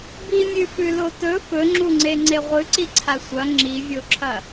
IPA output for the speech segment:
bimʲʉfʉlo tɵ fɵŋ͡ǁuŋ͡ǀeŋ͡ǀe ʁʷɨǀiǀʰa sʷɐ ŋ͡ǁivʲoǁʰɐ

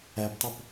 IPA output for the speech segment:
æptˤɵp

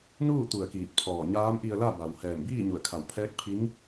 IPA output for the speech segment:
nuː˥˨ t̪u˧˩ə̯kiː˧˩t̚ pʰɔː˧˩ɲaː˧˥m ʔi˧ə̯la˥˨ ba˩w hɛː˧˩mbiː˥˨ɲu˧˩ə̯kʰa˧˩w pʰɛː˧˥k̚pʰi˧˥ŋ

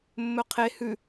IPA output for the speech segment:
mːɵqʰe hʉ

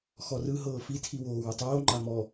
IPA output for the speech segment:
xɔrɯ ɦɤːfi tʰiwoːwutˤoː ŋ͡ǃamɔ

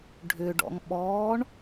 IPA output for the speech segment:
ɖʱʏɖɔ̰ŋɓɔːɳ

